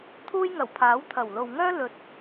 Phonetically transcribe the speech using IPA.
t̪ʰuː˥jŋɐ˨˩wpʰaː˨˥w t̪ʰɐ˨˩wlo˨wŋœː˥lɵ˨t̚

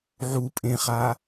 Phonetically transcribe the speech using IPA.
ʕu pʼẽχa

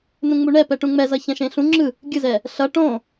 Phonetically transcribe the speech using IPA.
nũŋ͡muɳɛ pɛʈũŋ͡mɛzʌ çɛ̃ʃẽɬũ ŋ͡ǁɯ | ɡʲɯzɛ | ɬʌ ʈõ

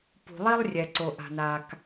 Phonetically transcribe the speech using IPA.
pṳ˩lˠi˥lˠ rʲɛ˩ǀo˩ ʔa̤˩naː˩k

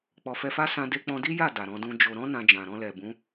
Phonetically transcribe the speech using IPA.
k͡pɔ˨fɛ˧fa˦ sã˧ de˧k͡pɔ̃˧di˦ ja˦˨ da˨ɾɔ̃˧dũ˦d͡ʒo˧ ɾɔ̃˦ nã˧d͡ʒã˨ ɾɔ̃˧lɛ˨bũ˨˦

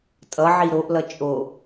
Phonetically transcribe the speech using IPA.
tʼʌʕi ɾoʔlʌ t͡ʃʼo

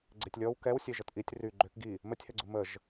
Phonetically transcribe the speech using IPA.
ɡ͡ǀetʲlʲɔw kɛwsʲe ʒətʔitʲ ry ɡ͡ǃøk ɡi | mətʲhɛɡ͡ǀu məʒ

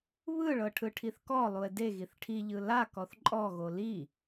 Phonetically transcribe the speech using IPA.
βɯɭɤʈʰɯ ʈʰiθkɔ lˠue̯deɣiθ ʈʰiʎɯ la kɔθǃʼɔɣo li

